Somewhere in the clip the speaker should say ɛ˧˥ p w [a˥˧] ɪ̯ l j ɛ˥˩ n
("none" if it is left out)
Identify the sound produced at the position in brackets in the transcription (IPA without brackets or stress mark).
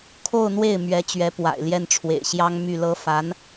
a̰˨˩